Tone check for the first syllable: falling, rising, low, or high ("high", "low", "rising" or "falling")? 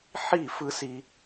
falling